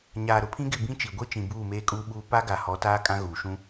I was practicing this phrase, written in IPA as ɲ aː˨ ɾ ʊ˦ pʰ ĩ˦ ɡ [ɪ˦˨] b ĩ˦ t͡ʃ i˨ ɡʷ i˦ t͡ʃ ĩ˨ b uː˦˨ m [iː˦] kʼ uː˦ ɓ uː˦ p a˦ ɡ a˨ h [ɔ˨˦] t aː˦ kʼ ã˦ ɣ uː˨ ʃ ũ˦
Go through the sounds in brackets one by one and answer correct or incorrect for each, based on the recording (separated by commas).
correct, incorrect, correct